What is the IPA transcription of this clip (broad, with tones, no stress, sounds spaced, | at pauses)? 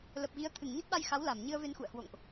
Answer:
l ə˨˩ p̚ ɣ i˨˦ ə̯ t̪ʰ ɨ˧˩ ŋ ɲ ə˦˥ t̚ ɓ a˧ j x a˨˦ w l a˧˩ m ɲ ɨ˧ ə̯ v e˧ n x ṵ˧˨ ə̯ h w o̰˧˨ ŋ ʔ